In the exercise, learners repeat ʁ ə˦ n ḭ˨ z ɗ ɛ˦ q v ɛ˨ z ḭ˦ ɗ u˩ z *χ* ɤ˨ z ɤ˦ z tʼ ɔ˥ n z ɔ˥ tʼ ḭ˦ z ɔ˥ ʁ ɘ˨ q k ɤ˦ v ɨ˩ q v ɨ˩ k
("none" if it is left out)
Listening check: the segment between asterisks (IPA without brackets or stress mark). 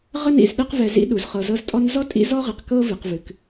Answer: χ